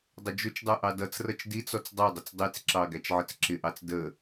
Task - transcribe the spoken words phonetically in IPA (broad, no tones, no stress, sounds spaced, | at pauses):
dˤ ʊ d͡ʒ ʊ t͡ʃ dˤ ə˞ ʔ ɑ d ʌ t͡s r ʌ t͡ʃ d i t͡s ɔ t͡s dˤ ɑ dˤ ʊ t͡s dˤ i t͡s ǁ ɑ ɡ æ t͡ʃ ʕ ə t͡s ǁ ɪ ʔ ɑ t͡s d ə